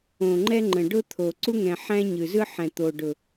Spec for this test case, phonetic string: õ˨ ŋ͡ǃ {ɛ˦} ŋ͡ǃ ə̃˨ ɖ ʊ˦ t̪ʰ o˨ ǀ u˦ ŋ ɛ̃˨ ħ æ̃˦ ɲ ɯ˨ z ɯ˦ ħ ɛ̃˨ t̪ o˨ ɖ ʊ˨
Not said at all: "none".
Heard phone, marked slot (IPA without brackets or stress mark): ɛ˦